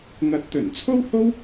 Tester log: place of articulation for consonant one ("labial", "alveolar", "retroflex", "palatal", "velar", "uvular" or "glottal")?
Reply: velar